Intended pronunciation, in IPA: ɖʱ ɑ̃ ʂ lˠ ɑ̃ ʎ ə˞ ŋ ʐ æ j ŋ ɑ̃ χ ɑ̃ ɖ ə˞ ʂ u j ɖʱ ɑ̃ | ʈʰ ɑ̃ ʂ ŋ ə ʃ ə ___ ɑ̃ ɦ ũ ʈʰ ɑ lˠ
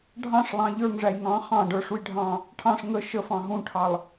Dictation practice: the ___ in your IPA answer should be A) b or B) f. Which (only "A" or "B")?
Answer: B